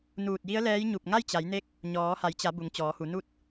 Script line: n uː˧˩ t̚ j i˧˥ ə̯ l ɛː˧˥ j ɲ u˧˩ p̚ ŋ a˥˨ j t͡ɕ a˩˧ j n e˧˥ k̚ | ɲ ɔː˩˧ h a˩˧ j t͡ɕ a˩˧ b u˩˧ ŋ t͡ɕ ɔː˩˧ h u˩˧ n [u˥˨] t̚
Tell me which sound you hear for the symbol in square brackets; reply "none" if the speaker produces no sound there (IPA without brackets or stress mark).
u˥˨